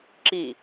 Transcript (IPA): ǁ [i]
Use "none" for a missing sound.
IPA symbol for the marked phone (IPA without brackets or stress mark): i